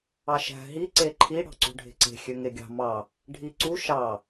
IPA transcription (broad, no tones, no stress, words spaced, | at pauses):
ɑʃæ̤ ɦi ǀeǃʰi ɽɑ̤ǀṳɖʱe̤ǀe̤ xʲøŋeɡʲɑ̤ mɑ | ɖʱi ǀu ʃɑ